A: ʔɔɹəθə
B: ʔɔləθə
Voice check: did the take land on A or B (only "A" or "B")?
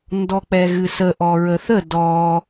A